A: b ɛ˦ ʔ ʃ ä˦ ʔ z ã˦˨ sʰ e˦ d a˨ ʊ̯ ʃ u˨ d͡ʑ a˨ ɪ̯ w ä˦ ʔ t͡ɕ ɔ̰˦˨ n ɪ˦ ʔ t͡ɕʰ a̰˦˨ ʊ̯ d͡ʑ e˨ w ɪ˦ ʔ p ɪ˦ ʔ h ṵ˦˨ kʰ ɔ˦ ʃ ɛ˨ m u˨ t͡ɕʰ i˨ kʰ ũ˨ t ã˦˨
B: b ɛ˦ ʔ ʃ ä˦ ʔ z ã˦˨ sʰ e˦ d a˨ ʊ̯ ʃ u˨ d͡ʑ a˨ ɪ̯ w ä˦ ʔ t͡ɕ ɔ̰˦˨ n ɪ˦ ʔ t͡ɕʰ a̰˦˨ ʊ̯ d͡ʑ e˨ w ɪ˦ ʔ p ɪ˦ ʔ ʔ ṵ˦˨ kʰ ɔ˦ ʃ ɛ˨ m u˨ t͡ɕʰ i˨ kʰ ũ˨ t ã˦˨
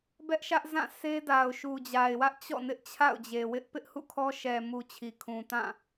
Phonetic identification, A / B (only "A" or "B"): A